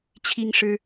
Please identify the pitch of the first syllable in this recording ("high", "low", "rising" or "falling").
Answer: high